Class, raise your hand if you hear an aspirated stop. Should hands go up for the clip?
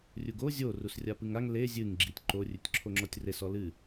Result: yes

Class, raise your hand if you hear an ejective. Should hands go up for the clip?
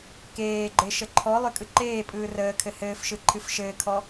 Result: yes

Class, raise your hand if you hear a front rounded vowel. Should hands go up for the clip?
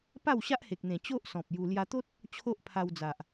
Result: no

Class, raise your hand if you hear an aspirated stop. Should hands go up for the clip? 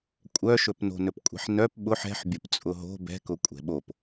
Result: no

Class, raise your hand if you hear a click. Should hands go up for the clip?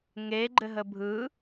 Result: yes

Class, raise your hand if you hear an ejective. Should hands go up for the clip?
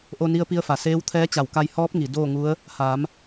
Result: no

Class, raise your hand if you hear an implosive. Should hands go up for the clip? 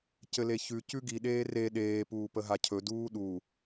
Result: yes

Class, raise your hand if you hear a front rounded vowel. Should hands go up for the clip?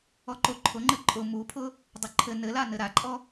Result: no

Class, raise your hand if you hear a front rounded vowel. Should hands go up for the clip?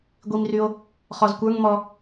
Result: yes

